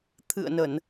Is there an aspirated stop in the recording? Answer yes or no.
yes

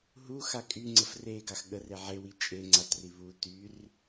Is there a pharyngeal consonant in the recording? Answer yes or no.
yes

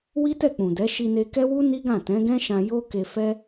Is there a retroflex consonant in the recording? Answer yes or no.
no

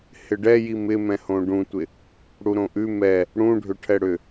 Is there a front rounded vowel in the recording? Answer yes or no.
yes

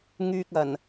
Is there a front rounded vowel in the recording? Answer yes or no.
yes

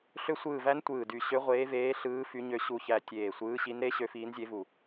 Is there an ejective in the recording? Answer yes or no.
no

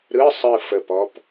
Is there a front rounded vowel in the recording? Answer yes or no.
no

